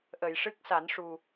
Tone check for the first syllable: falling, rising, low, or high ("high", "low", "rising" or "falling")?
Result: low